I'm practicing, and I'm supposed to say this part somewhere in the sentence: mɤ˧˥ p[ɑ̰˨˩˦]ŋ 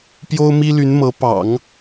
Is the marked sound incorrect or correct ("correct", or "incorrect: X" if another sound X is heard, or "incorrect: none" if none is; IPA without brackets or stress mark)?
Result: correct